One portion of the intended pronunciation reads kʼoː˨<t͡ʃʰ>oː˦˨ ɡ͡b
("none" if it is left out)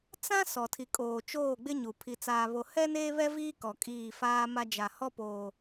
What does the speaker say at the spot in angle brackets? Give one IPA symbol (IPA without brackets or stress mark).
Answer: t͡ʃ